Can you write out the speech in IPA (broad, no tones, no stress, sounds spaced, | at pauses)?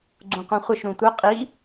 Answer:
ɡ͡ǀ ũ qʷ œ̃ χʷ ə ʃ ɾ ũ tʷ œ qʼ i